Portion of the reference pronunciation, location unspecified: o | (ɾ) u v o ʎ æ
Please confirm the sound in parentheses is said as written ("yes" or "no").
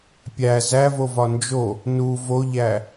no